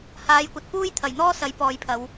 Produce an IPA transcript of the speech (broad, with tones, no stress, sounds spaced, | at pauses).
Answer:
h aː˨˧ j kʷ ɐ˨ t̚ p uː˥ j t̪ʰ ɐ˨˩ j n̪ ɔː˥ s ɐ˨˧ j p ɔː˨˧ j pʰ ɐ˨˧ w